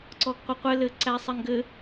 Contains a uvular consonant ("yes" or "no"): yes